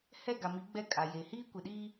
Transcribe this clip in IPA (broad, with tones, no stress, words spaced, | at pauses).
hɛ˦˨ɡa˨mi˨˦ ɡ͡bɛ˦kʼa˨je˨ hiː˦kʷe˨ɗiː˦